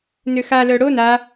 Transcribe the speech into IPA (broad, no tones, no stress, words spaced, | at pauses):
nøxalœ ɽo na